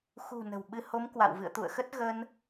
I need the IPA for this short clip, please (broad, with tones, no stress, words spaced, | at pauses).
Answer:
xṳ˨˩ nə̤˨˩wɓɨ˧ ho˨˦m kwa̰˧˨w vɨ̰˧˨ə̯t̪ṵ˧˨ə̯xə˦˥t̚ ɣə˧n